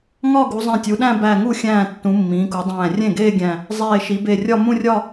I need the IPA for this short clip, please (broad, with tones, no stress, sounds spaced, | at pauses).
ŋ ɒ˥˧ ɡ u˩˧ zˤ ẽ˧˩ tʲ u˩˧ ɗ æ̃˥˧ b æ˧˩ ŋ u˥˩ xʲ æ̃ː˧˩ tː ũ˩˧ mː ĩː˩˧ k u˩˧ dˤ æ̃ː˧˩ rʲ ẽ˥˩ ɡ eː˥˧ ɡʲ æ̃˧˩ | zˤ eː˧˩ ʃ i˩˧ b e˧˩ rʲ ɒ˥˧ m ũ˥˧ rʲ ɒ˥˧